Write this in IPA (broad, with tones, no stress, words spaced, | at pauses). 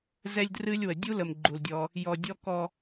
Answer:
zɛ˦lʲdrɨ˦lʲwə˨ dʲu˦lə˨m ɡ͡ǃu˨ldʲɔ˦ | jɔ˨dʲɔ˦ kɔ˦